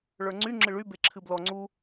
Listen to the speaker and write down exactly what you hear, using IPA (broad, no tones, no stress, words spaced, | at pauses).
ɭə˞ŋ͡ǀy ŋ͡ǁɨɭy beǁʰɨblɔ ŋ͡ǀu